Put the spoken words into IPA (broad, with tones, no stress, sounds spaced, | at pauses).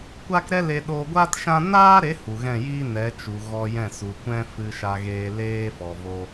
kʷ a˦ k ɾ ɛ˦ l e˧ ɗ oː˧ ɡʷ aː˦ t ʃ ã˦ n aː˦ ɾ e˨˦ h u˨ ɣ ɛ̃˦˨ j iː˦ n ɛ˨˦ t͡ʃ u˨ ɣ ɔ˧ j ɛ̃˦˨ s u˨ kʷ ɛ̃˦ f ɨ˧ ʃ a˧ ɣ eː˧ l eː˦ f ɔ˨ v o˧